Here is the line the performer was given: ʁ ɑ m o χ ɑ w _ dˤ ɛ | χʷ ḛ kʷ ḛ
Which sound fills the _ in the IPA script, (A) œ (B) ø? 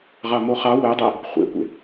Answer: A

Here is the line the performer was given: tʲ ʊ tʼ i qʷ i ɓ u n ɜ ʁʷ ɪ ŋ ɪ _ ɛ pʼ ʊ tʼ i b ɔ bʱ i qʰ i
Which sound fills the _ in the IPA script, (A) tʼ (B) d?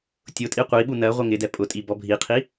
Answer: B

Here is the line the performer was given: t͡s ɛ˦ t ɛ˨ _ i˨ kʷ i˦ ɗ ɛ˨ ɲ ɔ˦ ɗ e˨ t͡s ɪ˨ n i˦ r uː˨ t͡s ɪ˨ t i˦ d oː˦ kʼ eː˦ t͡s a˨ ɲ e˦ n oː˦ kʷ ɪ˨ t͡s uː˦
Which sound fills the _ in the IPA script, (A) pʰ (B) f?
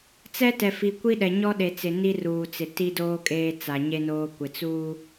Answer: B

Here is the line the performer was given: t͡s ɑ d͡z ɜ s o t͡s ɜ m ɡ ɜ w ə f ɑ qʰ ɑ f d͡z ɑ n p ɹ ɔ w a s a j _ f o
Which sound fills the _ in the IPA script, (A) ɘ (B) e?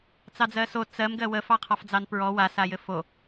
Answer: A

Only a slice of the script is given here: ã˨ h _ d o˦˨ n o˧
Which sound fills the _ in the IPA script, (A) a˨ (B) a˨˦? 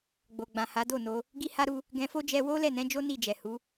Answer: B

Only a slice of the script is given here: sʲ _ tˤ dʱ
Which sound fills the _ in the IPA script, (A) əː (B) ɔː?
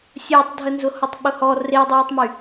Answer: A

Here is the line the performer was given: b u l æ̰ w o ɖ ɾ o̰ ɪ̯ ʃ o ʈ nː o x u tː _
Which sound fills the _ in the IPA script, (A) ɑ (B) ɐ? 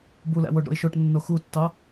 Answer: A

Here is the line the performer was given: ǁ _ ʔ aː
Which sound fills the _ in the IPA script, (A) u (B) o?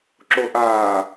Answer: B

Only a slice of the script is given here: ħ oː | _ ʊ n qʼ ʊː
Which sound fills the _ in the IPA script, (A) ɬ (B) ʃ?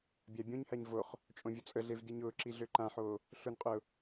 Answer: A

